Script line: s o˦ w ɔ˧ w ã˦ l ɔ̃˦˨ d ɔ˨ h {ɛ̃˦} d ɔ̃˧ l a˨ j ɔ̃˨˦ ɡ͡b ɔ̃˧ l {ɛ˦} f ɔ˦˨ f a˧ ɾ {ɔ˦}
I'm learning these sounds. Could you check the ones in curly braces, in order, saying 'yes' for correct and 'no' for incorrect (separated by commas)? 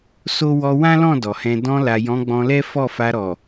no, yes, no